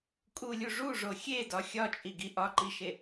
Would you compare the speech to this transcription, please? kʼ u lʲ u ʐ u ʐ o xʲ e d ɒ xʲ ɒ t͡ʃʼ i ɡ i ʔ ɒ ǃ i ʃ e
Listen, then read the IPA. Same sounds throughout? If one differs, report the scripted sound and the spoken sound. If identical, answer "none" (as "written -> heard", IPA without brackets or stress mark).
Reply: none